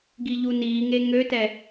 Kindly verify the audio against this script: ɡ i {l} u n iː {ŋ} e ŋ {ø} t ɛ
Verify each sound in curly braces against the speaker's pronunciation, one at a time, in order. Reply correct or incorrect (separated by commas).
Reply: incorrect, correct, correct